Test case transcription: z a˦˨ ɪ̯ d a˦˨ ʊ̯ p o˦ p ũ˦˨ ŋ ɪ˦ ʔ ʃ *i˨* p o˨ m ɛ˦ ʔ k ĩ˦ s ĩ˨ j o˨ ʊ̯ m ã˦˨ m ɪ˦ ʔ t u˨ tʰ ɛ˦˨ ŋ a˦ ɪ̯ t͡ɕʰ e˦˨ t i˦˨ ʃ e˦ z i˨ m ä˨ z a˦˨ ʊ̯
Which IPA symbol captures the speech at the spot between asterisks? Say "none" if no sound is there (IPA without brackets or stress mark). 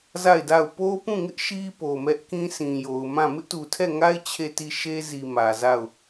i˦